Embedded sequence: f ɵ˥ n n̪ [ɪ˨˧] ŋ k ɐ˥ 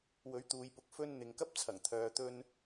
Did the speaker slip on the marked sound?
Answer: yes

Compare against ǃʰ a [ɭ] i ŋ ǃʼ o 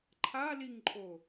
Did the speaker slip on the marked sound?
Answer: yes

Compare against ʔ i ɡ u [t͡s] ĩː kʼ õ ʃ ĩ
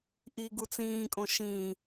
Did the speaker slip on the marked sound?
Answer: no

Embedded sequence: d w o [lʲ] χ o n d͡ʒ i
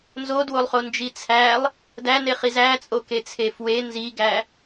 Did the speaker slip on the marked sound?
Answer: yes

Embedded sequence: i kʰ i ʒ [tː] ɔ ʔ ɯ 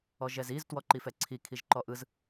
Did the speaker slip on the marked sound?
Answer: yes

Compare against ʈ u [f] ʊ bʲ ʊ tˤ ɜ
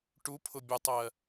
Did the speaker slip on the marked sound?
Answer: yes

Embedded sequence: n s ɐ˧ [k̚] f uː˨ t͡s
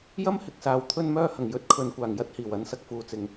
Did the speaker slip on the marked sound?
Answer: no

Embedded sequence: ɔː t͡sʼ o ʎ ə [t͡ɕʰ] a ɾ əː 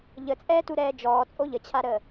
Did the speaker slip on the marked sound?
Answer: no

